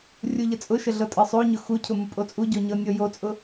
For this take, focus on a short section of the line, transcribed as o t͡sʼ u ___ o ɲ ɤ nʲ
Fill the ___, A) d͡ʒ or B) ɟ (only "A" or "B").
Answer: B